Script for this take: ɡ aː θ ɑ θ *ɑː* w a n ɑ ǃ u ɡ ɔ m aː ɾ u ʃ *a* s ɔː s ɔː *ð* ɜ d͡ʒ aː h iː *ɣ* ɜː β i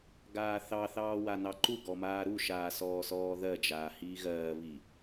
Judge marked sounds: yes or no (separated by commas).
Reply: yes, no, yes, yes